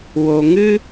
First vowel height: mid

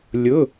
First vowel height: high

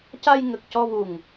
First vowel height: low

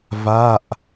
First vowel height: low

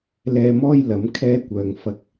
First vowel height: mid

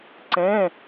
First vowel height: mid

